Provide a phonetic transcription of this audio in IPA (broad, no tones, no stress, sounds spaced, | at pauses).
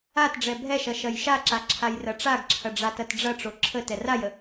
a t ɖ͡ʐ ɛ bʱ ɛ ʃ ɐ ʃ ɐ j ʃ a ǁ a ǁʰ a j r ɐ ʈ͡ʂ a ɡ ǁʰ ɐ ɖ͡ʐ a t ɐ t ɖ͡ʐ ɐ ʈ͡ʂ o ǁʰ ə t ɛ r a j ə